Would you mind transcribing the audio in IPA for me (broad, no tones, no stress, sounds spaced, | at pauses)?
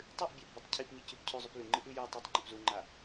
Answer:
tˤ ɨ ʔ bʲ a ʔ b u tˤ cʰ i p ɲ i c ʉ p cʰ ʉ zˤ ʉ p l ʉ ŋ͡ǃ ɨ ʔ ʉ j ɵ tˤ i tˤ ŋ͡ǃ ɵ p z u ŋ͡ǃ a